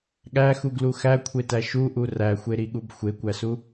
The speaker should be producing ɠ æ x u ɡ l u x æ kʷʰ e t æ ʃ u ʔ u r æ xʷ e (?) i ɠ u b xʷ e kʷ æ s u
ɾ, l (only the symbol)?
ɾ